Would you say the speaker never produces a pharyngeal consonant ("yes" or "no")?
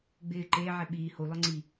no